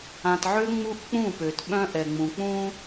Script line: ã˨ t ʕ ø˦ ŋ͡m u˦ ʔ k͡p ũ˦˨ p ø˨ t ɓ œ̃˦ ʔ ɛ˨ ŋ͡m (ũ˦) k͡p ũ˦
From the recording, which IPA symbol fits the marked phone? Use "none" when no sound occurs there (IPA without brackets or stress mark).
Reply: ũ˨